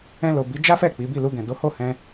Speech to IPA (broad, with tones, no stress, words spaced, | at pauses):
ɛ̃˧lo˨bi˨˦ d͡ʒa˦fɛ˦˨ k͡pi˨˦ bi˦˨lu˧ɡɛ̃˨ do˨˦ho˦˨hɛ̃˧